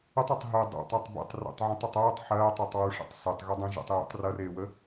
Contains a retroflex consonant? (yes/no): yes